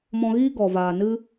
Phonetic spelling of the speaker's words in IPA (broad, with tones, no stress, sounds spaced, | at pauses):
m ɔ̃˧ ɣ iː˦ ɡ ɔ˨ v aː˨ n ɨ˦